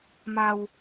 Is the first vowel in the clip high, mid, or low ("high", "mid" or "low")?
low